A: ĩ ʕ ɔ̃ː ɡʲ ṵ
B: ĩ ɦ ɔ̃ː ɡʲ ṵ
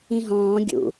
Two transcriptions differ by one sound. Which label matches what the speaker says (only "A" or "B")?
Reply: B